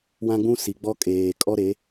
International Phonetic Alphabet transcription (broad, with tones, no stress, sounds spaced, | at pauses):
w ã˦ ɡ͡b ũ˦ s i˨ ɡ͡b ɔ˦ kʼ eː˨ kʼ ɔ˦ ɾ e˨˦